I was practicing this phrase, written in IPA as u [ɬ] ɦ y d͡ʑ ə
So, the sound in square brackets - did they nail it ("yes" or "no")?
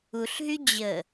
yes